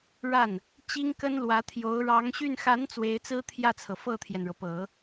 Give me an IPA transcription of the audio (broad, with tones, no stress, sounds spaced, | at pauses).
ɻ a˥˩ n | t͡ɕ i˥ ŋ k ə˥ n l w ä˧˥ t̪ʰ j o˧˥ ʊ̯ ɻ ɑ˧˥ ŋ ɕ y˥˩ n x a˧˥ n t͡s w e˧˥ ɪ̯ t͡s ɹ̩˥ t̪ʰ j ä˥˩ t͡sʰ ɤ˩ f ɤ˥˩ t̪ʰ j ɛ˩ n ɻ ɤ˩ p ɤ˨˩˦